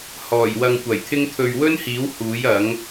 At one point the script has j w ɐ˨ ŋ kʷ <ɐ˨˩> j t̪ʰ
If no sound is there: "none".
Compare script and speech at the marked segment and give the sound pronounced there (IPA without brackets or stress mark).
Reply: ɐ˨˩